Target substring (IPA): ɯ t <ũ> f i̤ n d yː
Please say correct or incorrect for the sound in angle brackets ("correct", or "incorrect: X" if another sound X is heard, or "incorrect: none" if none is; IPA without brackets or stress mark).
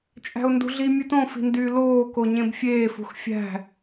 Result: incorrect: õ